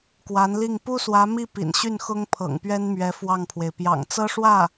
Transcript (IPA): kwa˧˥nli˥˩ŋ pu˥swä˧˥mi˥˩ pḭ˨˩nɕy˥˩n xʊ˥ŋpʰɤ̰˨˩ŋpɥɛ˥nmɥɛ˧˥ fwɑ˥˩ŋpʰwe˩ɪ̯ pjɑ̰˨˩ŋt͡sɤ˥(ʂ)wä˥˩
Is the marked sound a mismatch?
no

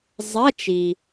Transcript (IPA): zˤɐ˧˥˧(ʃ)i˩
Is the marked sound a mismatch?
yes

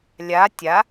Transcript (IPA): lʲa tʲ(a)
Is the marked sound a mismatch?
no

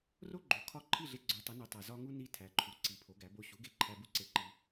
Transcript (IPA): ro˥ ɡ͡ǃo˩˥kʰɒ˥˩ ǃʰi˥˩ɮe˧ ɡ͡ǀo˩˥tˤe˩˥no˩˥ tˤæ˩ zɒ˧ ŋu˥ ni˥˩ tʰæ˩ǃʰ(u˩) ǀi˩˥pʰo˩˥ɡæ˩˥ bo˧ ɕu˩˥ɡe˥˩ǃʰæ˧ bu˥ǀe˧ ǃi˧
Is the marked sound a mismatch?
no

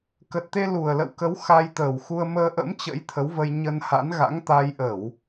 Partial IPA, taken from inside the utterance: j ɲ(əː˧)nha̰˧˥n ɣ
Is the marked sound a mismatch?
yes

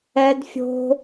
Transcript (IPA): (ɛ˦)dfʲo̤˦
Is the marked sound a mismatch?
no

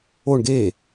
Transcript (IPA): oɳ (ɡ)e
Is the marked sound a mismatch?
no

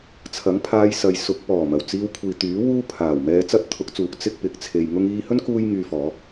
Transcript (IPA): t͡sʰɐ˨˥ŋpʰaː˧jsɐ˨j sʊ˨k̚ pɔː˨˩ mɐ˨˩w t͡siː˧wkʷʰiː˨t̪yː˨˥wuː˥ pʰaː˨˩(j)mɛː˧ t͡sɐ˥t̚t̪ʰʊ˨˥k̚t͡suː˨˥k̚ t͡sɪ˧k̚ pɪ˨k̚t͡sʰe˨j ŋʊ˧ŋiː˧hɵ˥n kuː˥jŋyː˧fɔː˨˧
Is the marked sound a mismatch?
yes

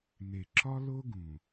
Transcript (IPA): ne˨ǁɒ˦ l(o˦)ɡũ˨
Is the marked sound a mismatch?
no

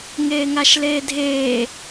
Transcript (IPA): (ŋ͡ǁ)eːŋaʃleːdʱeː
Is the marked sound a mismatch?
yes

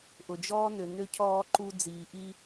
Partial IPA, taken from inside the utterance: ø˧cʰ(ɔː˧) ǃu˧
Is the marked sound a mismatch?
no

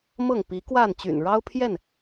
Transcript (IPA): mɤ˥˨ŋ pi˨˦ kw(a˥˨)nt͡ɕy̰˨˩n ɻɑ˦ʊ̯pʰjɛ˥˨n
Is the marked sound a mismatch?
no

